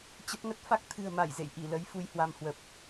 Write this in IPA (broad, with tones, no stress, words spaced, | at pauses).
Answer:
t͡ɕə˦˥p̚ŋə˦˥t̚ fa˦˥k̚t̪ʰɨ̤˨˩ə̯ma˧˩j zḛ˧˨jʔi˧˩lə˨˦j fu˧jhwa˧mhwə˨˩p̚